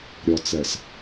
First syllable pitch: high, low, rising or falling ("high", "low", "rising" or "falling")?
low